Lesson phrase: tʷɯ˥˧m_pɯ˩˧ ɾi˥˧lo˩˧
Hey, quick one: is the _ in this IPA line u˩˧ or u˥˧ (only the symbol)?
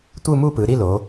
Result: u˥˧